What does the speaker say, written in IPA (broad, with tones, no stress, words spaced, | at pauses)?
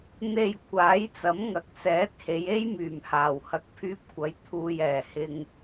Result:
n̪e˧j kʷʰaː˨˥jt͡sɐ˨˥mŋɐ˨˥k̚ sɛː˨˥t̚he˨˧je˥jmyː˨˩m haː˨˩whɐ˧k̚pʰyː˥p̚ kʷɐ˨˧j t̪ʰuː˨j ɛː˨˩hɪ˧ŋ